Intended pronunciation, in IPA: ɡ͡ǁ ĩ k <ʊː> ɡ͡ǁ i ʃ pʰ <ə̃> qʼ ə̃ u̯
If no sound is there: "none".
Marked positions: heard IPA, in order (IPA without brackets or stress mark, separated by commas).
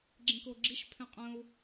ʊː, ɛ̃